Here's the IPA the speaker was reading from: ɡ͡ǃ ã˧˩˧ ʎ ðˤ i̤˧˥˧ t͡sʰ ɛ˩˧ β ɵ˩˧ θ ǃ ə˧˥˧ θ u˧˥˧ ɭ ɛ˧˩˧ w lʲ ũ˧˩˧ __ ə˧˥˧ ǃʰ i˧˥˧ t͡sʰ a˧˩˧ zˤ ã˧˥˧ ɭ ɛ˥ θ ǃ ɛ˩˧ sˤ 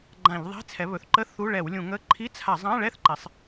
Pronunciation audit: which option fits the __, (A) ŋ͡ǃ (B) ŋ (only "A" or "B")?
B